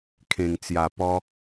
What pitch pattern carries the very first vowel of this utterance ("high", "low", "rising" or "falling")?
low